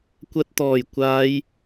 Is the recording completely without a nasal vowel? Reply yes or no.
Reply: yes